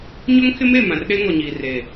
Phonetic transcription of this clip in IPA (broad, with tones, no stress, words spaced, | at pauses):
ɲʊ˦ŋkʰɪ˦me˦˨ mã˨rɗe˦ ŋɔ˨ɲiː˨reː˨